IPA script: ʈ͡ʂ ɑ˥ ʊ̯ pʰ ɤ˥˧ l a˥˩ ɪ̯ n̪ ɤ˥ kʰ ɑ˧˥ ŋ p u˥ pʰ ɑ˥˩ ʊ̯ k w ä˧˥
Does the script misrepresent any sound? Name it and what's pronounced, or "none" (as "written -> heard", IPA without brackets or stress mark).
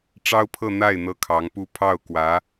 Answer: l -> n̪